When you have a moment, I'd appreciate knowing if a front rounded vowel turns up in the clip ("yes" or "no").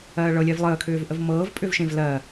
yes